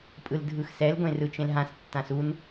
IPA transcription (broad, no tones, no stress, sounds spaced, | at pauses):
pʼ ɯ l dʱ ɯ x s ɛ l ɡʷ ẽ r ɯ t͡ʃ ẽ l ɦ ã s tː ã s u n